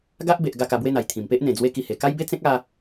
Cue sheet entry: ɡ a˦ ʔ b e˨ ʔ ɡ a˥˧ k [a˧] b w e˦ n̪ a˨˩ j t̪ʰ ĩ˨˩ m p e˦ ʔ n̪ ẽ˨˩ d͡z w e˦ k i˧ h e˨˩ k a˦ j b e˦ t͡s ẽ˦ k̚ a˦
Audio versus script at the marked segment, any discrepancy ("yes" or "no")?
no